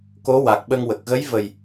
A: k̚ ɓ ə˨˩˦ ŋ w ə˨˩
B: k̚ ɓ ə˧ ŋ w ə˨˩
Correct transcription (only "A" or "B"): B